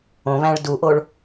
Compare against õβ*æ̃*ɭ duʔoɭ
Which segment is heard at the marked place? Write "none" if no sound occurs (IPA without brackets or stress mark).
æ̃